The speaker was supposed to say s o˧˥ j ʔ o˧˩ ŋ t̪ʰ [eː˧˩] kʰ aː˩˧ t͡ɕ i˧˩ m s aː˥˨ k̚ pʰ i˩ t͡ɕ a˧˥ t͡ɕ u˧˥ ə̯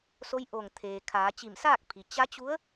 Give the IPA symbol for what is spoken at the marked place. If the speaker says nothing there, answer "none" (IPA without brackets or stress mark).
eː˩